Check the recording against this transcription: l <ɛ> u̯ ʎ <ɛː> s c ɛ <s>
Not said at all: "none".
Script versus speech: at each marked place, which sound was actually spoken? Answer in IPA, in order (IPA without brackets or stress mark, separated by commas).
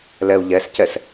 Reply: ɛ, ɛ, s